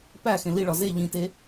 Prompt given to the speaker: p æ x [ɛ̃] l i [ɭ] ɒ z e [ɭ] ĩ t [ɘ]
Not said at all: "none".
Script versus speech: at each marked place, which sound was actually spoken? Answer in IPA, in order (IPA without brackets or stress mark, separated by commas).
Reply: ẽ, ɭ, ʎ, e